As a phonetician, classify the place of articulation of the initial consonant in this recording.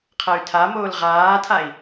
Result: uvular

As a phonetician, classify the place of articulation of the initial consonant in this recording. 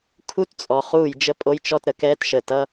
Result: velar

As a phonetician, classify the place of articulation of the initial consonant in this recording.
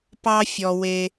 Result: labial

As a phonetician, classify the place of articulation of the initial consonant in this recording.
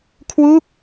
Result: velar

